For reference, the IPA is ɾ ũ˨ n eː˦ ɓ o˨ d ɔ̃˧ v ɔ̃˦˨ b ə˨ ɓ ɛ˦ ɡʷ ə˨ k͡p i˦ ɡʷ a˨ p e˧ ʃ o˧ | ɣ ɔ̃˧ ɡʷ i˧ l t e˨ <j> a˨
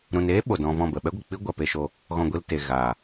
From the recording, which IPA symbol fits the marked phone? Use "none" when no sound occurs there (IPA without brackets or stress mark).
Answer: ɣ